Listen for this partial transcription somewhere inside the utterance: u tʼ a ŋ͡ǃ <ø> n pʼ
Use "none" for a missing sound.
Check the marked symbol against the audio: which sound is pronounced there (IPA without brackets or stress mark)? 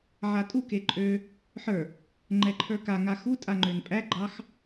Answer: ø